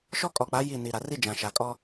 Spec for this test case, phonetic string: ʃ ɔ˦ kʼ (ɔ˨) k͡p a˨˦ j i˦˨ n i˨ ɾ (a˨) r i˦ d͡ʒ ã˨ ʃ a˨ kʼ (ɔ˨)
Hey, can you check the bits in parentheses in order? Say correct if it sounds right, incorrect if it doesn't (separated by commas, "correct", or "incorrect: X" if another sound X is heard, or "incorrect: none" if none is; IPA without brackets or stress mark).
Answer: correct, correct, incorrect: ɔ˦